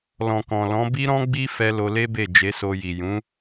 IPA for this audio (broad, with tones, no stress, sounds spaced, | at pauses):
l ɔ̃˨ k ɔ̃˨ l ɔ̃˨˦ b i˦ ɾ ɔ̃˦ ɡ͡b i˦ f ɛ˧ l o˧ l e˦ b e˦˨ d͡ʒ e˨˦ s o˧ j i˨ j ũ˨˦